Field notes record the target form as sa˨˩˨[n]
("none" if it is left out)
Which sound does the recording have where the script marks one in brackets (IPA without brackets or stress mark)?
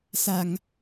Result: ŋ